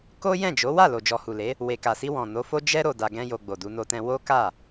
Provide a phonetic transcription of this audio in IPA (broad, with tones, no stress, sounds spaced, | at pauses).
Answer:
k o˦ j ɛ̃˦˨ d͡ʒ o˨˦ w a˦˨ l o˨ d͡ʒ ɔ˨ h u˨ l e˨˦ | w e˨ k a˨ s i˧ w ɔ̃˨ n o˨˦ f o˦ d͡ʒ ɛ˦ ɾ o˧ d a˧ ɡ ɛ̃˦ j o˧ ɡ͡b o˨ d u˧ n o˧ t ɛ̃˧ w o˦ k a˦˨